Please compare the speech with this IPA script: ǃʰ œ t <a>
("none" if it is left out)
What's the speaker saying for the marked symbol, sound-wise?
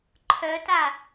a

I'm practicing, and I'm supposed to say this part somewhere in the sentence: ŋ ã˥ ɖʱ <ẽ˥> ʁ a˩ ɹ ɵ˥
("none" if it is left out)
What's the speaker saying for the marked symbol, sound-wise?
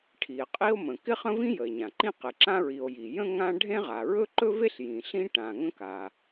ẽ˥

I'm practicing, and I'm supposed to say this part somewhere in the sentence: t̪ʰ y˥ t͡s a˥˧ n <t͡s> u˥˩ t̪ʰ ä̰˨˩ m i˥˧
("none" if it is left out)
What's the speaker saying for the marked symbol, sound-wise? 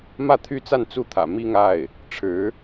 t͡s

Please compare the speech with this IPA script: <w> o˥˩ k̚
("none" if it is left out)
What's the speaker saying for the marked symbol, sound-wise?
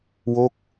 w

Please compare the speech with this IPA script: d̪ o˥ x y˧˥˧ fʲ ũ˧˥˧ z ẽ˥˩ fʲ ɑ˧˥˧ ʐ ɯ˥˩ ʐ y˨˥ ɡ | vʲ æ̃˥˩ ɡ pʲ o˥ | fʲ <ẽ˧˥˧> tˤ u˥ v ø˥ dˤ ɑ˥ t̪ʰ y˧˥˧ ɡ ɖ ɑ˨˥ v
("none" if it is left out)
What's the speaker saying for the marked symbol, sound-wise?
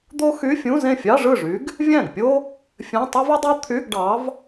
ẽ˧˥˧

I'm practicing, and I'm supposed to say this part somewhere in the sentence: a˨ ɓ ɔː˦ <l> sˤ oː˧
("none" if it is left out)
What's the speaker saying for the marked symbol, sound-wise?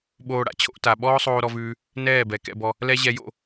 none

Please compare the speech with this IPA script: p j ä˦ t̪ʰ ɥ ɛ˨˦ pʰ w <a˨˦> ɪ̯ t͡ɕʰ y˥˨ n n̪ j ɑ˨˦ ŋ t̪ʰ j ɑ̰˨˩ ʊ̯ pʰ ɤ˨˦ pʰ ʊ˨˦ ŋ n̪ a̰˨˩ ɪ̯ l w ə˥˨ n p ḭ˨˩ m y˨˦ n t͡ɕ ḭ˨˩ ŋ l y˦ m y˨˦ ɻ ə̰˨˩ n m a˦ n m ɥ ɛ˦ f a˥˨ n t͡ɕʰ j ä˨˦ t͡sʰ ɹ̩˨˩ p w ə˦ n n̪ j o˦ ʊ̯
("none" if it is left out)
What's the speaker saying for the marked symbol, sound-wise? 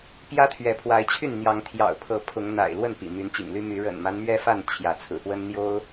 a˨˦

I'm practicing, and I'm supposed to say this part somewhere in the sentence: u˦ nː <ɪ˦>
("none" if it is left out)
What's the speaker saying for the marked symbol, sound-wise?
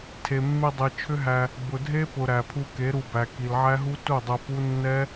ɛ˦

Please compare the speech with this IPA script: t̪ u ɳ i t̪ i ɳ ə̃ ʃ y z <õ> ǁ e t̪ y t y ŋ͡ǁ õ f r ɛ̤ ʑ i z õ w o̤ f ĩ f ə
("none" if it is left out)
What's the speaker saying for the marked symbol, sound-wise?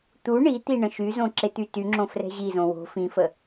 õ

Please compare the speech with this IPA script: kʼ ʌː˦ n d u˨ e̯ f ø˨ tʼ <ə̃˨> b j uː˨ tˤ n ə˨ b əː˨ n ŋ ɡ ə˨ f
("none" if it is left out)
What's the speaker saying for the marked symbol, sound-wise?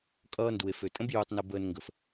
ə̃˦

